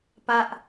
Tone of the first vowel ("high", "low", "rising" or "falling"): high